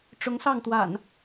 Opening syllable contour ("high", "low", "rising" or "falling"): rising